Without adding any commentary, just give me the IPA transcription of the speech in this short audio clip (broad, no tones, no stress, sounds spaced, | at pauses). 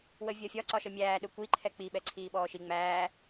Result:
w ə vʲ ɒ fʲ ɒ ǀ ɒ ʃ ə mʲ æː ɗ ʊ kʷ i ǃʰ ɛ k͡p i ɓ ɛ ǀʰ iː ɓ ɔː ʃ i ŋ͡m æː